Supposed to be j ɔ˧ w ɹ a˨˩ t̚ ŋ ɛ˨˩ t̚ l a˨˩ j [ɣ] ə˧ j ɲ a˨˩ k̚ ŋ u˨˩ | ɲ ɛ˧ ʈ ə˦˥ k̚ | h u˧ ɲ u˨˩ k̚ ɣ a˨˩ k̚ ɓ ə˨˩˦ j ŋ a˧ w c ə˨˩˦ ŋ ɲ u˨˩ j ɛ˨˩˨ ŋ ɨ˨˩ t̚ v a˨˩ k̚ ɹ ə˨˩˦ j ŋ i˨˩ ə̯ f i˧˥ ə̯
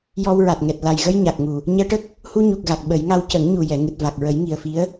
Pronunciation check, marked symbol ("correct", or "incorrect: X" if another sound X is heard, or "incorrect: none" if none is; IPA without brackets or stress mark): correct